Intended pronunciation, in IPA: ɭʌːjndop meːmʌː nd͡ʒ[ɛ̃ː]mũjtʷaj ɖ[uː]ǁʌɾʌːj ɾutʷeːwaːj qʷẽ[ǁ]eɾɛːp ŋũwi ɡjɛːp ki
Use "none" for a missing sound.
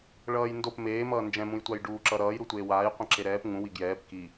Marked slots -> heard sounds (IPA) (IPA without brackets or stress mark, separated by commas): ɛ̃, uː, ǁ